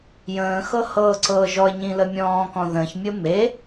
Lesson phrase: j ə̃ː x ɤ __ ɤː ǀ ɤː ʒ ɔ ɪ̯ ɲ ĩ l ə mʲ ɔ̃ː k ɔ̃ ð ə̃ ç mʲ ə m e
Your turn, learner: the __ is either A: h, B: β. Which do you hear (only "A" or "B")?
A